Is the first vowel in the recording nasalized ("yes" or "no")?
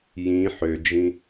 yes